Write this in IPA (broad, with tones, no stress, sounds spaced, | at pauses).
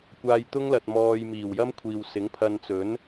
kʷ aː˧ j t̪ ʊ˥ ŋ l ɐ˨ t̚ m ɔː˧ j m iː˨˩ w j ɐ˥ m kʷʰ iː˨ w s ɪ˨˥ ŋ pʰ ɐ˧ n t͡s ɵ˨˥ n